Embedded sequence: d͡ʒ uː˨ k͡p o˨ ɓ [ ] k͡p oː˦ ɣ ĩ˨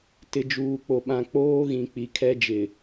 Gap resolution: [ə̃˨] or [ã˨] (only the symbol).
ã˨